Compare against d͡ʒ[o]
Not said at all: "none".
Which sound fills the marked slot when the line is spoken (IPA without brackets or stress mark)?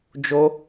o